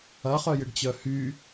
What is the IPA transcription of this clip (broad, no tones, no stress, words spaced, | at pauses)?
ɐχœjɪɖt͡ɕœ hy